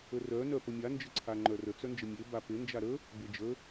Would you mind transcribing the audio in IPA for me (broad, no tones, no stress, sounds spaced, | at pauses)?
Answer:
ə r œ n œ p ə mʲ a n d͡ʒ ə ǀʰ a ŋ͡ǃ œ r ə t͡s œ n d͡ʒ ə mʲ e b a p e n d͡ʒ a ɾ ə | b e d͡ʒ ə